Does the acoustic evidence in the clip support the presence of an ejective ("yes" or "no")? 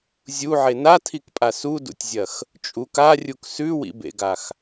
yes